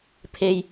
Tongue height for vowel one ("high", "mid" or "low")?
mid